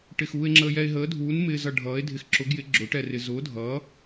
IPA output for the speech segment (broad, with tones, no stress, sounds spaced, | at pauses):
ʈ ɪ˧ x uː˧ e̯ ŋ͡ǁ əː˧ j ɛ˧ e̯ ɦ əː˨˥ dʱ uː˨˥ n m ɪː˧ z ʌ˧ ɖʱ ʌː˨˥ e̯ dʱ ɪ˧ x ǁ ʊ˨˥ ɡ j ɪ˨˥ ɡ͡ǁ ʊː˨˥ ʈ ɛ˧ r ɪ˧ z ʊː˨˥ dʱ ʌː˨˥